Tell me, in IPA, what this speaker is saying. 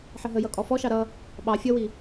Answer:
ħ ə ɦ ə j ʌ kʼ ɔ f ɔ ʃ ɑ ɾ ʌ | ɓ ɑ fʲ ʌ w i

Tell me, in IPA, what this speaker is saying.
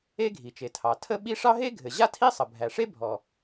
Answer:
e˥ ɡʱ i˩ t͡ʃ e˩ tʰ ɑ˩ tʰ ə˥ ɓ i˥ ʂ ɑ˥ ɦ e˥ ɡʱ ɘ˩ ʑ a˥ tʰ i˥ sˤ ə˩ bʱ æ˩ ʂ e˥ bʱ ɔ˩

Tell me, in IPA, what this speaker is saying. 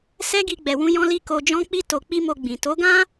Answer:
s ɛ˦ ɡ i˧ ɡ͡b ɛ˨ w ũ˧ j ɔ̃˦ l i˦ k o˧ d͡ʒ ɔ̃˦ k͡p i˦ t o˧ k͡p i˦ m o˧ ɡ͡b ĩ˨ t o˨˦ ɡ ã˦

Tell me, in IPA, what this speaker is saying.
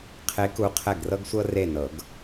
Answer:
qʰ e˧˥ k u˧˥ qʰ ɛ˦˨ ɡ r ɤ˥ ɡ sʷ ɤ˥ r e˦˨ n ɤ˨˩˦ ɡ

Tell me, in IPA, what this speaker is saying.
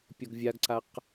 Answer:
pʲ ɔ ɡ vʲ a ɡ ǀ a q

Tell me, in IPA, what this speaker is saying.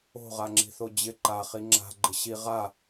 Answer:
o̤ ʁ a ŋ͡ǁ i̤ θ o d͡ʑ ɪ ǃ a χ i ŋ͡ǁ a̤ ɡ͡ǃ ɪ ɕ i ʁ a

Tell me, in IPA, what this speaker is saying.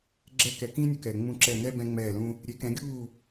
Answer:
ɡ͡ǁ ɛ˥ k ɛ˩˥ k ĩː˥ nʲ ɵ˩˥ k ɛː˩ ŋ͡m ũ˥˩ ǁ ɛ˥˩ n ɛ˥ b ɛ̃˥ ŋ͡m ɛː˥˩ l ũ˥ | ɾʲ e˩˥ k ɛ̃˩˥ ɡʲ uː˥˩

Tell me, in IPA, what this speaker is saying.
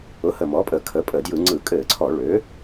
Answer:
ʊ˩˥ h ə˨˩ m ɔ˩˥ pʼ ə˧˩˧ kʰ ə˩˥ pʼ ə˧˩˧ d j ɯ˧˩˧ ŋ͡ǀ ɯ˧˩˧ kʼ ɘ˧˩˧ ǀʰ ɔ˧˩˧ ɭ ø˩˥

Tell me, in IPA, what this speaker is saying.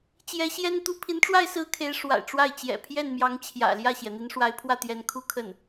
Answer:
t͡ɕ j ɛ˧˥ ɕ j ɛ˥ n t̪ u˥˩ pʰ i˧˥ n ʈ͡ʂ w a˥˧ ɪ̯ s ɹ̩˥˩ kʰ e˧˥ ɪ̯ ʂ w a̰˨˩ ɪ̯ ʈ͡ʂ w a˥˩ ɪ̯ t͡ɕ j ɛ̰˨˩ pʰ j ɛ˥˩ n m j ɑ˧˥ ŋ t͡ɕʰ j ä̰˨˩ l j ä˥˩ ɕ j ɛ˩ n̪ i˧˥ n ʂ w a˧˥ ɪ̯ pʰ w ä˥˩ t̪ j ɛ˧˥ n kʰ u˥˧ kʰ ə˥˩ n

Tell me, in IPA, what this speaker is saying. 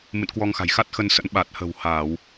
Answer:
m ɨ̰˧˨ n k w ɔ˧ ŋ x a̤˨˩ j x a˦˥ t̚ x ə˧ n s ə̰˧˥ n ɓ a˨˩ t̚ h ə̤˨˩ w h aː˧˩˨ w

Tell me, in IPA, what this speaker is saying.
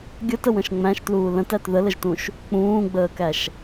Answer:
ɡʲ ə t ə w ə̃ ʃ ŋ͡m æ̃ ʃ t l uː l ə̃ t æ t ð ə l ə ʒ t ũ ʃ | k͡p ũː ɡ͡b əː k æ ʃ

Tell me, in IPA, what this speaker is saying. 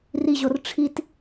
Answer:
r i ʑ o r ʈ͡ʂʰ i t

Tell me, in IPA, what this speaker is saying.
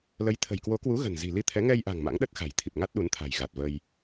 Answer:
l ə˨˦ j t̪ʰ ə̤˨˩ j k w o˨˦ k w u˨˦ ɣ ə̤˨˩ n z i̤˨˩ l i˧ t̪ʰ ɛ˨˦ ŋ ɛ˧ j ʔ a̤˨˩ ŋ m a̰˧˥ ŋ ɗ ə˦˥ t̚ x a̤˨˩ j t̪ʰ i˨˩ p̚ ŋ a˦˥ t̚ ɗ u˨˦ n t̪ʰ a̤˨˩ j ɣ a˨˩ t̚ v ə˧ j

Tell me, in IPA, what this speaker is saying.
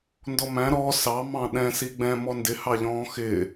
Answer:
n d ɔ m æ̃ ɾ ɔ s ɑ m ɑ̃ ɗ ɛ̃ s i ɡ͡b ɛ̃ m ɔ n d ɪ h ɑ ʎ ɔ̃ː x ɪ

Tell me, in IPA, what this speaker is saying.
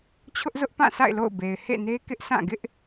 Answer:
t͡ɕʰ ʊ˦ ʔ z ʊ˦ ʔ p ã˦˨ sʰ a̰˦˨ ɪ̯ l o̰˦˨ ʊ̯ b e˨ ɪ̯ h ḛ˦˨ n e˦ k ɪ˦ ʔ sʰ ã˦˨ ɡ ɪ˦ ʔ

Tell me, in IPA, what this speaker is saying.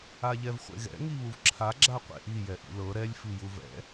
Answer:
a ʎ ɛ v χʷ ḛ ɣ ɛ̰ ŋ i β u v ǁʰ a ɡ͡ǁ a qʷ ḛ ʔ i j ɛ ʔ ḭ l ɤ ɾ ɛ lʲ f i j u v ɛ̰

